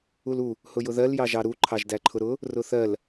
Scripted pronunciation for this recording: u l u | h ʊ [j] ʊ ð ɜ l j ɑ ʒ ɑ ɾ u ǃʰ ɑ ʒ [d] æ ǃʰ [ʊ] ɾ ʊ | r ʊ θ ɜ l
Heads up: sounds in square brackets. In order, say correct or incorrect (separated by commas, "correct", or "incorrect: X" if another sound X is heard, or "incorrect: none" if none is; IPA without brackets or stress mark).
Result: correct, correct, correct